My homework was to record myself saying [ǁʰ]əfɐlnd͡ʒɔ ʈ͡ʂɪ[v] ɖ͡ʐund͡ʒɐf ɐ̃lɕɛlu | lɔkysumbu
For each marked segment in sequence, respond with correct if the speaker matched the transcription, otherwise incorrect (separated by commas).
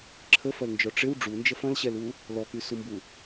correct, incorrect